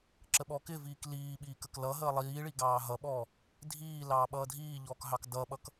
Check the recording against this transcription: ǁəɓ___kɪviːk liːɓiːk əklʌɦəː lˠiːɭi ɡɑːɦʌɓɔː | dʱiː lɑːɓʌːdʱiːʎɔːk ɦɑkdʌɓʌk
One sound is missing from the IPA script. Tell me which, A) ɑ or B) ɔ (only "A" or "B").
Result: B